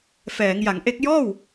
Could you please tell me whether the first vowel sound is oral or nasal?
oral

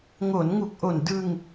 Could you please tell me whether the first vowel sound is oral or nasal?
oral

